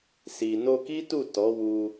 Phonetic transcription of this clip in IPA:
s i˨ n o˧ k i˦ t u˦˨ t ɔ˨˦ w u˧

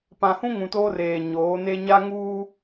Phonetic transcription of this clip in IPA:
p ã˨ h ũ˦ ŋ ũ˨ t oː˦ r eː˨ ɲ oː˨˦ n e˦ ɲ a˦ ŋ uː˦

